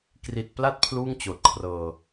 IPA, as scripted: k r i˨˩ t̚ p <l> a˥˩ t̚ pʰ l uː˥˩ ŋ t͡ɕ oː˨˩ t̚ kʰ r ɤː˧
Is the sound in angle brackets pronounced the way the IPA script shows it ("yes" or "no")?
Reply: yes